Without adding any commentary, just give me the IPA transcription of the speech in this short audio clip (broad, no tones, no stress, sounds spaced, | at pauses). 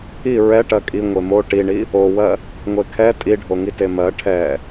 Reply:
i ɹ ɛ ʈ ɜ kʼ i ŋʷ e m o ʈ i ɳ i | o w ɜ | ŋʷ e kʰ ɛ tʼ i ɖʱ o ŋ i t e m ɜ ʈʰ ɛ